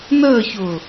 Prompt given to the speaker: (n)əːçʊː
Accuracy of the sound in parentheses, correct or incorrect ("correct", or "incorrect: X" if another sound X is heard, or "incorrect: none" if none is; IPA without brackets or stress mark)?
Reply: correct